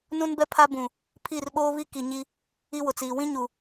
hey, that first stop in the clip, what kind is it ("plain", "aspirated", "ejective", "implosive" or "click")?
plain